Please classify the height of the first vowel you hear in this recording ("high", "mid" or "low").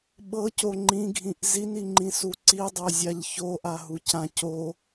mid